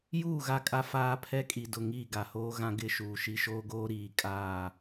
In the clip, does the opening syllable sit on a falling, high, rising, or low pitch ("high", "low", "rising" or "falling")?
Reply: falling